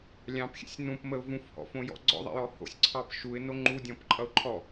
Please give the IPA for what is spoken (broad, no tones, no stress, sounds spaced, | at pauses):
lʲ ɑ̃ p xʲ ɛ̰ sʲ n ũ p m ə ʊ̯ v ũ f h ɔ̰ f õ j ɔ̰ ɡ͡ǀ ɔ̰ ðˤ ɛ̰ j ɔ h o̰ sʲ ǀʰ ɑ p ʃ u ɪ̯ n o ŋ͡ǃ u dʲ ɔ̃ p ǃʼ ʌ ʊ̯ ǃʰ ɔ